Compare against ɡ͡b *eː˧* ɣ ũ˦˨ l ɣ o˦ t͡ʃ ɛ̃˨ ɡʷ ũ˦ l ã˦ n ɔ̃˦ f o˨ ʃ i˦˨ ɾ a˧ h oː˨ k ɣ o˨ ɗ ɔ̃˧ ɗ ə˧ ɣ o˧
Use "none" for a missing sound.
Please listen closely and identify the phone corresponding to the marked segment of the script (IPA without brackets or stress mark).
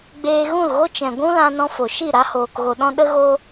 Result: eː˧